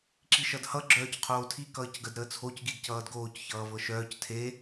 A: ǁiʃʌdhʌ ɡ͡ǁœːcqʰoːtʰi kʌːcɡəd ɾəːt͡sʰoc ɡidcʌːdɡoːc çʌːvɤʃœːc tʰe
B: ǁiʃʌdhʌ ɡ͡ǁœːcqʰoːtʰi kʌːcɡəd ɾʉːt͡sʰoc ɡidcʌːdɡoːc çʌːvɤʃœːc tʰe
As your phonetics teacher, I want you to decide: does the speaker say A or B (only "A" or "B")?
A